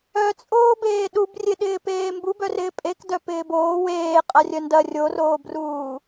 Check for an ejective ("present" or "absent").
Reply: present